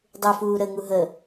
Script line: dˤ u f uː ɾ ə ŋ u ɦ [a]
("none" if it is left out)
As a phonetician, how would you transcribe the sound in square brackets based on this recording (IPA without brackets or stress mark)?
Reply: ə